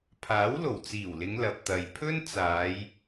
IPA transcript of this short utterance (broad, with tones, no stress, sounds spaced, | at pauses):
pʰ aː˨˥ w l o˨˩ w t͡s iː˨˩ w l ɪ˨˧ ŋ l ɐ˨ p̚ t̪ ɐ˨ j pʰ ɵ˥ n t͡s aː˨˧ j